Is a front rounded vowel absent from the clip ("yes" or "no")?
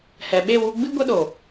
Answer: yes